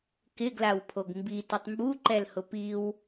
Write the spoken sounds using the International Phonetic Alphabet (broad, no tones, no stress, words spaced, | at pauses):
kɪɡlawpʰoɡ mbitʊtˤ mbuǃɛlhʊ piw